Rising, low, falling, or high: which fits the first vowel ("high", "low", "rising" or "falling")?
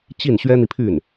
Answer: falling